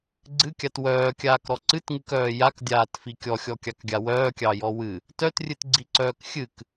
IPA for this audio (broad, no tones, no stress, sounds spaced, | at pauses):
ɡ͡ǀ ɨ kʲ a t w œː kʲ aː k ɾ ɔ ǀ ɨ t ŋ ɨ k œː j a k dʲ aː t f i kʲ ɔ xʲ ɔ kʲ ɑ k ɡʲ a w œː kʲ ɑ j ɔ w ɨ | t œ t rʲ ɨ t ɡ͡ǀ i ǀ œː k xʲ ɨ k